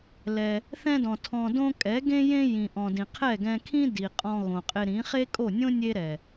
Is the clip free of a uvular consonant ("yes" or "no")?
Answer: no